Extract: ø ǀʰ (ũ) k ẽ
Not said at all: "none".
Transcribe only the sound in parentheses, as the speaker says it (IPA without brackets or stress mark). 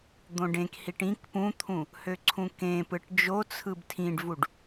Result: ũ